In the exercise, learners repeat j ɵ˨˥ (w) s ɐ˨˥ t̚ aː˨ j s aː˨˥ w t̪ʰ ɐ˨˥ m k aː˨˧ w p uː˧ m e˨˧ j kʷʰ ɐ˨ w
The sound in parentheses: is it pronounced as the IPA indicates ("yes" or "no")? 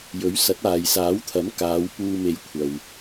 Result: no